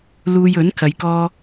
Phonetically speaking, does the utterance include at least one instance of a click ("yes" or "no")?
no